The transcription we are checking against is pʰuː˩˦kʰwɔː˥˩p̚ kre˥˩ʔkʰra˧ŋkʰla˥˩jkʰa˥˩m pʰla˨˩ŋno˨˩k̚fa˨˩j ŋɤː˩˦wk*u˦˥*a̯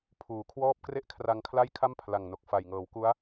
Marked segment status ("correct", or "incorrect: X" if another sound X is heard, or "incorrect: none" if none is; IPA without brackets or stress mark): correct